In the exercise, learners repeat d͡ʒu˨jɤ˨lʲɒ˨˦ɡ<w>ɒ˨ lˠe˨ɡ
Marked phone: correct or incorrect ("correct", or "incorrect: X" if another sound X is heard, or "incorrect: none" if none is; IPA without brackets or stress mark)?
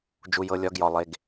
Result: incorrect: j